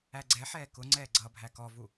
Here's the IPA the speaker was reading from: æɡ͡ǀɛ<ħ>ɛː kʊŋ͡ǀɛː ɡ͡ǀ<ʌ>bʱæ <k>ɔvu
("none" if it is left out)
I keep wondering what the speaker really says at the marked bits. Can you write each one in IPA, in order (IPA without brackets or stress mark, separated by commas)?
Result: ħ, ʌ, k